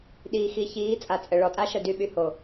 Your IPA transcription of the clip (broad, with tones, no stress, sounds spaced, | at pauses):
ɗ iː˨ x i˨ ç iː˨˦ t͡sʼ a˨ t͡sʼ ə˨ ɭ ɔ˨ tʼ a˦ ʃ ə˦˨ d y˨ ɓ y˨ h o˨